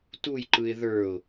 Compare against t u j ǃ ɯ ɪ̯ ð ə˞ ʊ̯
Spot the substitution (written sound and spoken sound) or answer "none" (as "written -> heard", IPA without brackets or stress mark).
none